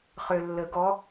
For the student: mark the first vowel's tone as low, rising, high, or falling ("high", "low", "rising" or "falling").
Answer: low